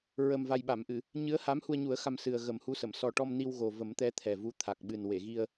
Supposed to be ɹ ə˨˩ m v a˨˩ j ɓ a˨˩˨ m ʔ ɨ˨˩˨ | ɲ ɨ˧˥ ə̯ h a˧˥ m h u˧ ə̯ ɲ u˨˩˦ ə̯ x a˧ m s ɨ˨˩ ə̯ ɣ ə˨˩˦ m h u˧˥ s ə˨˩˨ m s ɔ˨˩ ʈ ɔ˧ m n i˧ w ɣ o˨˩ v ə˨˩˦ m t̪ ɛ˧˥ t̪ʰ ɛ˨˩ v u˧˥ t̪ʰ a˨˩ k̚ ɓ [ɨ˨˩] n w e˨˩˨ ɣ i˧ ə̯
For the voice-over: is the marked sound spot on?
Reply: yes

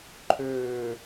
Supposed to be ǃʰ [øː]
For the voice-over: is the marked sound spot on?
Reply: yes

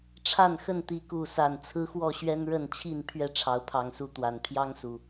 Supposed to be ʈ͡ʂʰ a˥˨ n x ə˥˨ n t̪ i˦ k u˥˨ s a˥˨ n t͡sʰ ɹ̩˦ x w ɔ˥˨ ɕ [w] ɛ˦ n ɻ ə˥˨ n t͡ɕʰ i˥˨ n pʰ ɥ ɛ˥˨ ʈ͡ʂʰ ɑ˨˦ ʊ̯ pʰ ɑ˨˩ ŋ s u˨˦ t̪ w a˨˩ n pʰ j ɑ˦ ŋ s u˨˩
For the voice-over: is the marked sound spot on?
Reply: no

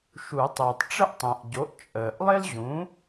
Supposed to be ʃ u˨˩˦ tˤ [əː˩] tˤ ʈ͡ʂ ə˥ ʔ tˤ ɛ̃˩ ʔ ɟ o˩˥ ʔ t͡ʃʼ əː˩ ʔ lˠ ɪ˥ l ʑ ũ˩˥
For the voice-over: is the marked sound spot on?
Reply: yes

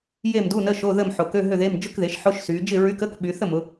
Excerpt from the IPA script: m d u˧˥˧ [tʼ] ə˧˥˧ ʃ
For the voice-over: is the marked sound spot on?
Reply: no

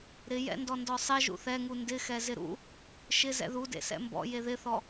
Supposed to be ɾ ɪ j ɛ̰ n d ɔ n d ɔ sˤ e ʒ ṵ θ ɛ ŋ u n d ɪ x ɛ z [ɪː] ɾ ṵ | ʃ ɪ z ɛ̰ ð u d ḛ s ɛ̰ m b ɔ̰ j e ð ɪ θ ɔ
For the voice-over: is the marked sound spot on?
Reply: no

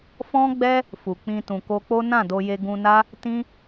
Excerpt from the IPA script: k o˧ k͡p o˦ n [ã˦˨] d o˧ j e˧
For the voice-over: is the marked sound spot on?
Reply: yes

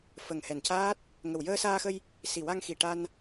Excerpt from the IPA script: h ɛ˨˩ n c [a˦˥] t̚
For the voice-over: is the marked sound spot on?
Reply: no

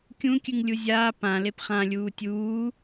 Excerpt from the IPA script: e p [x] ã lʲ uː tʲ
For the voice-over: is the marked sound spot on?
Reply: no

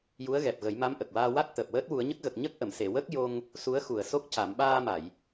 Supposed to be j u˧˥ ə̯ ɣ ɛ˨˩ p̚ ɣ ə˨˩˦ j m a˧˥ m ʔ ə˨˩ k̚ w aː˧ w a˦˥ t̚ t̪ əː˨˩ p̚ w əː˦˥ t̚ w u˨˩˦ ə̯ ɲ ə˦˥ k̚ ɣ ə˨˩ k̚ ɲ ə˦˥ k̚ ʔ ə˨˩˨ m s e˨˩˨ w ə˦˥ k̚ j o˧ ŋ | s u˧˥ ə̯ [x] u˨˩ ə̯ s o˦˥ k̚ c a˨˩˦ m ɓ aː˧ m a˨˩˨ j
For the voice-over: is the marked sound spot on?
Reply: yes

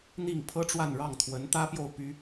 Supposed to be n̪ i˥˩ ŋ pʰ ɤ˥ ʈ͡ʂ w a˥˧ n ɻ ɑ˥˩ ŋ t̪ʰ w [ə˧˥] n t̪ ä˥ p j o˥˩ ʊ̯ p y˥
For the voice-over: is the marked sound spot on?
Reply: yes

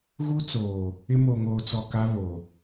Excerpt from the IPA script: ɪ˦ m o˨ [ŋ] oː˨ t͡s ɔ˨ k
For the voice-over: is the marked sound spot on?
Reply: yes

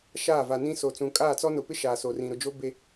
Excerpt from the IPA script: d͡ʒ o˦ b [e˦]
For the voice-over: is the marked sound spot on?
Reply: yes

